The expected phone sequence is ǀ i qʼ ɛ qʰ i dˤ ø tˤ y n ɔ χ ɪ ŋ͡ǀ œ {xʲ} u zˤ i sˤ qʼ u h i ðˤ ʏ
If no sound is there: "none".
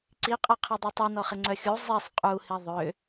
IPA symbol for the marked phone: xʲ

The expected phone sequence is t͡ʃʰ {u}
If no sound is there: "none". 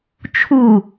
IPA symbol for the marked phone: u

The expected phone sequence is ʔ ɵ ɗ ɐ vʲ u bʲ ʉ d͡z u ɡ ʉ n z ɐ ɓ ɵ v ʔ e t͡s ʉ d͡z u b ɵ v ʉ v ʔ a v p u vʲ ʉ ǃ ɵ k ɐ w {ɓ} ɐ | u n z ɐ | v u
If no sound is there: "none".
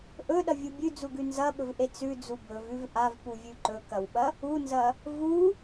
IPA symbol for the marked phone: ɓ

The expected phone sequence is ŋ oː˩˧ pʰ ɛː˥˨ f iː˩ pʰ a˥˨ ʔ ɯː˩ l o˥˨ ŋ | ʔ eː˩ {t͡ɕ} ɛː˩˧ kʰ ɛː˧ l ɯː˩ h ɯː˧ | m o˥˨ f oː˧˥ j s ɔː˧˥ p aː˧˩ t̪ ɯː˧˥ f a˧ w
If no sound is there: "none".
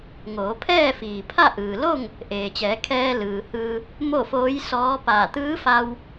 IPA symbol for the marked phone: t͡ɕ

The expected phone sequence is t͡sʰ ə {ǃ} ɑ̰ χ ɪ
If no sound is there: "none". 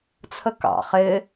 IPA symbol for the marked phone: k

